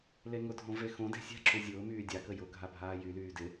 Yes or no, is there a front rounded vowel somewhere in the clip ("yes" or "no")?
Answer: yes